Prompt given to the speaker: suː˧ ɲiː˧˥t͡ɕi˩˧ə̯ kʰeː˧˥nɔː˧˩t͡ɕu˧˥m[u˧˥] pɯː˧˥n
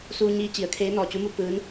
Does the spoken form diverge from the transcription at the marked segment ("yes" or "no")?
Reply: no